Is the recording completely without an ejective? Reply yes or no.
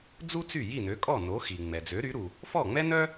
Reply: no